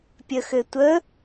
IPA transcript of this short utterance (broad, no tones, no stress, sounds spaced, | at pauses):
pʲ ə x ɘ tʷ ə